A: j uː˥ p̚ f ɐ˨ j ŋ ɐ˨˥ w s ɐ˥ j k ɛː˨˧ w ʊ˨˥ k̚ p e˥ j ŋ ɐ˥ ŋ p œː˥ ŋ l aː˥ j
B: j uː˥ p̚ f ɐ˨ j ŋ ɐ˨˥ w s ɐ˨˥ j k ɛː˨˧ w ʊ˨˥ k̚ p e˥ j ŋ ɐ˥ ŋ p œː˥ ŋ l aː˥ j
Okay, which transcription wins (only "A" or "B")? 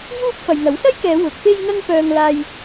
A